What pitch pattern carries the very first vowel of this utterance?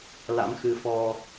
rising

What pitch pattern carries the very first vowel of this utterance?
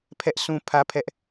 high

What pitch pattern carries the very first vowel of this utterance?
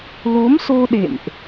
rising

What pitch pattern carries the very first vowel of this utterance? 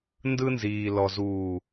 high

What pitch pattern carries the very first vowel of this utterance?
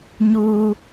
high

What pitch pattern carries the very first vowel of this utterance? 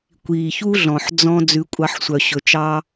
low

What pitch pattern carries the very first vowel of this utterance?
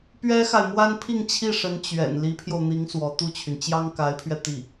high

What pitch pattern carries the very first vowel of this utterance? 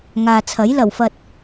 low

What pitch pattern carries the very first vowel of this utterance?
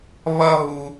high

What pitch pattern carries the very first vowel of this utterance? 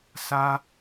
high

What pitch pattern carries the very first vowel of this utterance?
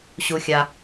low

